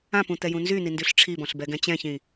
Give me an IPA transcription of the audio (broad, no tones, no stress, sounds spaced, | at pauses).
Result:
ã p ũ t̪ ɛ j ũ n z y n i n d y ɬ ʈ͡ʂʰ i b ɔ̃ ɬ b ɛ ɡ ɛ̃ t͡ɕ ɛ̃ ç ĩ